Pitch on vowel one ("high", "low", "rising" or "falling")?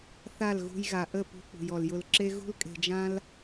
falling